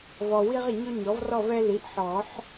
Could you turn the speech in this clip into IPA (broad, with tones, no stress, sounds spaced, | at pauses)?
v ɔ˨ w i˦ ʁ ɪ˨ ɲ ʊ˦ ɲ ɔ˩˥ v r ɔ˥˨ v ɛ˦ l i˩˥ ʔ ħ ɔ˨˩˦ ħ